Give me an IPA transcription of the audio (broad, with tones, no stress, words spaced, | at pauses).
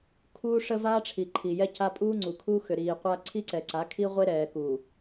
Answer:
kʰuː˦ʂə˦vaː˦ʈ͡ʂʰi˨ ǃʰi˨jɛ˦ca˦ pʼuː˦ŋ͡ǀu˨kʰu˦xʏ˨ ɾiː˨ qʷa˦ ǀʰi˦ǀɛ˨ǀa˨˦ kʰi˦ʁʷe˦ ɾɛː˨ku˨